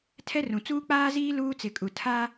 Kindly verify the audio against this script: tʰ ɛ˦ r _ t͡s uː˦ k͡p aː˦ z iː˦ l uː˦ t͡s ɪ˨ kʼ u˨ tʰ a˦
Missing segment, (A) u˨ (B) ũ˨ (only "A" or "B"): B